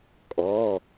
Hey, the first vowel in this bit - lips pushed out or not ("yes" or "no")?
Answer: yes